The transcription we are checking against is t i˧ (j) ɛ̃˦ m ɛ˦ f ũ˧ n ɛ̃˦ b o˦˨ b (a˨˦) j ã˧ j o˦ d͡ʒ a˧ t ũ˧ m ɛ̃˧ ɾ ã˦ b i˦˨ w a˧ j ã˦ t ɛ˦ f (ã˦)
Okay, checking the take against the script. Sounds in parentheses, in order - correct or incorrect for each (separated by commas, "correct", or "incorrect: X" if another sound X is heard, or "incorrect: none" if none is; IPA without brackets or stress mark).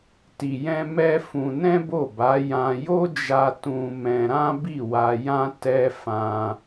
correct, correct, incorrect: ã˧